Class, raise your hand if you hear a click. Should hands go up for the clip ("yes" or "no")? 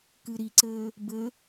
yes